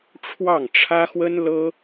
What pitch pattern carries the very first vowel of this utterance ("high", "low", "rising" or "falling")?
falling